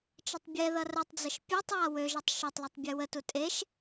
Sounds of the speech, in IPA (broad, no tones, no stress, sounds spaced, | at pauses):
t͡ʃ ə tˤ bʲ ɛ ð ʌ r ə tˤ d͡z ə ʃ pʲ u tˤ w a w ø ʒ ʌ tˤ ʃ ø tˤ l e tˤ bʲ ɛ w ə t u tʼ e ʃ